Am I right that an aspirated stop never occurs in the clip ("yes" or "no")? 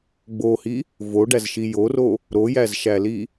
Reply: yes